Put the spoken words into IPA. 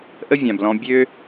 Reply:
ʔə˦vʲã˩blɔ̃˨ bʲø˦

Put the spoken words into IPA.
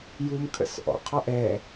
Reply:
jumkʰə̰s ʔɔ̰qʰɔ ʔɛ

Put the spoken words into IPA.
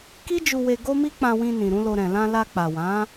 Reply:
ki˦d͡ʒu˧we˧ ɡo˦mi˦ k͡pã˧wĩ˧ nĩ˨ɾũ˨˦lo˧ ɾɛ̃˨lã˧la˧ k͡pa˨wã˨˦

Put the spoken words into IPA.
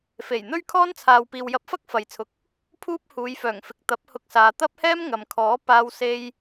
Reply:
fe˨˩j n̪ɵ˥ɥkʰɔː˥nt͡sʰaː˨w piː˨wjɐ˧p̚fɐ˥k̚ fɐ˨jt͡sʰʊ˨˥k̚ | pʰuː˥p̚huː˨˧jfœː˨˩ŋfɪ˨k̚ t̪ɐ˨˥p̚hʊ˧k̚saː˨ t̪ɐ˥p̚hɛː˥m ŋɐ˨mkʰɔː˨˥ paː˧w se˧j

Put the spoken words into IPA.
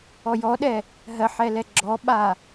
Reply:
ɔjɔɗɛ | ɦɜħɛlɛ ɡ͡ǁɔɓa

